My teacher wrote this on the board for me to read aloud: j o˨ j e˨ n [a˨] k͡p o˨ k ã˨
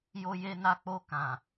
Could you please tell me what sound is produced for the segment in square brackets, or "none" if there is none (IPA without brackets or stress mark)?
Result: a˨